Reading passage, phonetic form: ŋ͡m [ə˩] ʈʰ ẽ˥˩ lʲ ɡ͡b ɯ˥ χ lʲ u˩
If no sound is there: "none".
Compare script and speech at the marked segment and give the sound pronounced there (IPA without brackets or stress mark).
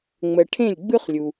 ə˩